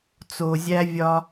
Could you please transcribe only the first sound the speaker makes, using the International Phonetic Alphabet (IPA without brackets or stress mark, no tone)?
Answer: t͡s